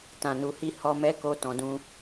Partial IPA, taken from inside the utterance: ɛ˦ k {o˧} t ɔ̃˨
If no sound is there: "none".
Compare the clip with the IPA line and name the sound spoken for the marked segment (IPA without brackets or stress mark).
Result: o˧